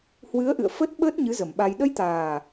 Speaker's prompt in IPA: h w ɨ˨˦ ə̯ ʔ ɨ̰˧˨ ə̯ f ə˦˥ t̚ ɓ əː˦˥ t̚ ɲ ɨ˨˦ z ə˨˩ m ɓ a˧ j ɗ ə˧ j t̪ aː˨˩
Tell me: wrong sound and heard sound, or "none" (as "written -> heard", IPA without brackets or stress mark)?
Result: none